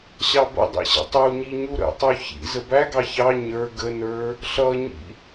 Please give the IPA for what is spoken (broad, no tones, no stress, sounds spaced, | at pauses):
ɕ ɑ b ə̰ dˤ ɛ̰ ɕ ə̰ tˤ u ɲ i ɲ u ɾ ə̰ tˤ u ç ḭ z ə b æ ɡ ɑ ç ɑ ɲ ə˞ ɡ ə n ə˞ | ɬ ʌ ɲ ḭ